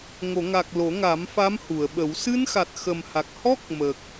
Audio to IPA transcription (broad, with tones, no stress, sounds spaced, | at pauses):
ŋ o˨˩˨ ŋ a˨˩ k̚ l o˨˩˦ ŋ a˨˩˦ m f a˧˥ m h u˨˩˨ ə̯ ɓ ə˨˩˦ w s ɨ˧ n x a˨˩ t̚ x ə˨˩ m h a˨˩ k̚ h ɔ˦˥ k̚ m ə˨˩ k̚